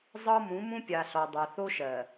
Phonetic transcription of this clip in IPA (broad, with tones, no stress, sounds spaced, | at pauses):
zˤ ɤ˦ m ũ˨˦ m ũ˦ pʲ a˨ ɬ ɔ˨ dˤ əː˨ θ o˦ ʃ ɜ˨